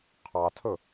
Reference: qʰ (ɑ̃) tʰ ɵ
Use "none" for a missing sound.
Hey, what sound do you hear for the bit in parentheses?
ɑ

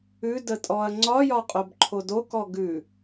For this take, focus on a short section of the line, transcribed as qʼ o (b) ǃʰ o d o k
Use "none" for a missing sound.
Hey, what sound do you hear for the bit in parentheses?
b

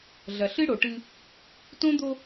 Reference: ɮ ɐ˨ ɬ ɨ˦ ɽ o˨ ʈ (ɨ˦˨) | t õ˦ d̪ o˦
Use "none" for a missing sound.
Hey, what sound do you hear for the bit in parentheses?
ɨ˦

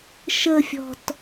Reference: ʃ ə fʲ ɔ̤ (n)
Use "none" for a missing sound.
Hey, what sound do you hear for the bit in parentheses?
t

